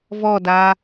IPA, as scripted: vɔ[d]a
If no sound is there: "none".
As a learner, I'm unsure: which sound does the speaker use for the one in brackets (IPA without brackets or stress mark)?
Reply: d